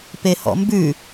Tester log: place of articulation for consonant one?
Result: labial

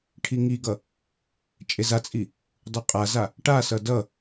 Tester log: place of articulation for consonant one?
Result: retroflex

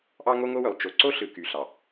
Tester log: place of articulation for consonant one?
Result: glottal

